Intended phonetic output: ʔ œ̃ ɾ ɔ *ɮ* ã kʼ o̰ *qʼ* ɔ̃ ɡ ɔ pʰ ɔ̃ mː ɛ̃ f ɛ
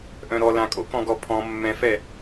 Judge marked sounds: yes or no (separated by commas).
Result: no, no